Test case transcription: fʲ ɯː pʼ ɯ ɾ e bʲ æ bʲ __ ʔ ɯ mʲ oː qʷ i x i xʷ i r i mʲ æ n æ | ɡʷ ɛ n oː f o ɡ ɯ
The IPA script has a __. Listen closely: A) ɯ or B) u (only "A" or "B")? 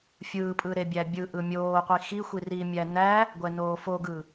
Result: A